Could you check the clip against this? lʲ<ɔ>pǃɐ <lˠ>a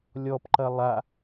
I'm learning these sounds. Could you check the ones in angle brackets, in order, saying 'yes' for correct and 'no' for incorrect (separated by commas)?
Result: yes, yes